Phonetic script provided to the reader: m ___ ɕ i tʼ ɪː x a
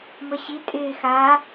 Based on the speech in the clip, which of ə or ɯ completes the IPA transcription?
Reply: ə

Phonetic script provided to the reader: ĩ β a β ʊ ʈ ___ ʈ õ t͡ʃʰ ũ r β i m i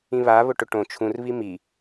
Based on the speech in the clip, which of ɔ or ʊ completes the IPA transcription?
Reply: ʊ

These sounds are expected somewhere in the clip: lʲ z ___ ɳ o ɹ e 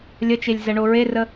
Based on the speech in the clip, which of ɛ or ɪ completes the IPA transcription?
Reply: ɛ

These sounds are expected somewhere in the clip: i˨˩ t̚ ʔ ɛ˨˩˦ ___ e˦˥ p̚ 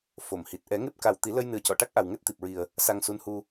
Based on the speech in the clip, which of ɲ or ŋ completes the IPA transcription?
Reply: ŋ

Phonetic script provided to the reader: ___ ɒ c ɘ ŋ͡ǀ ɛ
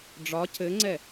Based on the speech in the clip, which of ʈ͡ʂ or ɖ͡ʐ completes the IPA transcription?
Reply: ɖ͡ʐ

